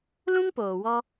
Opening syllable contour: high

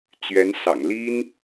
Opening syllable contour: rising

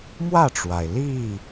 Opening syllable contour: falling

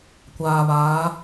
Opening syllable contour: low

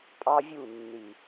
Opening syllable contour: high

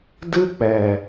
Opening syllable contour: high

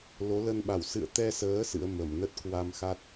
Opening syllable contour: rising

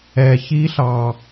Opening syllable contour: low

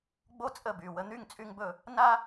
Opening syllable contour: high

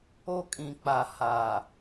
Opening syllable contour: high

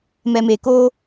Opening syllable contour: low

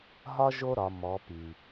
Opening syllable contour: high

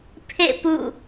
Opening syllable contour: falling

